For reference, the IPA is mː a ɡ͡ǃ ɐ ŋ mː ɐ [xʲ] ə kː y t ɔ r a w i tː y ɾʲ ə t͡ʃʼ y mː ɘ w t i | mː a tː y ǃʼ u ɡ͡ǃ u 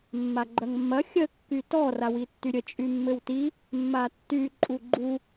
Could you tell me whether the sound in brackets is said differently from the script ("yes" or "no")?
no